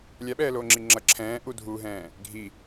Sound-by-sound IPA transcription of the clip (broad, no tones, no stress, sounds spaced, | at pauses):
lʲ a ɓ ɛː l oː ŋ͡ǁ i ŋ͡ǁ ʌ ǁʰ ɛ̃ː ʔ u dʱ uː ɦ ɛ̃ː | ɡʱ i